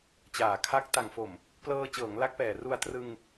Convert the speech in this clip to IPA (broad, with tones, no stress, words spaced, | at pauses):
t͡ɕaː˨˩kʰa˦˥k̚ ta˨˩ŋfo˨˩m | plɤː˧ t͡ɕɤː˩˦ŋla˦˥k̚pɛː˨˩ru˧a̯ trɯ˧ŋ